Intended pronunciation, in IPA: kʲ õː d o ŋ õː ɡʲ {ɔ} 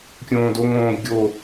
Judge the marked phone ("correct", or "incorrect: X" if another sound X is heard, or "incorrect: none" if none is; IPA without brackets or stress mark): incorrect: o